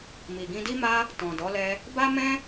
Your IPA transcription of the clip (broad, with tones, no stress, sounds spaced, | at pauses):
m i˨ ɡ ĩ˧ d i˦ m a˦ | t ɔ̃˨ d ɔ˨˦ l ɛ˧ | b a˦ m ɛ̃˦